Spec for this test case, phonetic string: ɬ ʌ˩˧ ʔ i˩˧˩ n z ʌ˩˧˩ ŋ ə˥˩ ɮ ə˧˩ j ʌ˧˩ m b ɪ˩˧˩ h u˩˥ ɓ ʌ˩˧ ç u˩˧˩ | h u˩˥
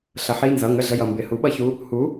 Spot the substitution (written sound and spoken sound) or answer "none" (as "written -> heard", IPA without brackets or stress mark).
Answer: ʔ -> ħ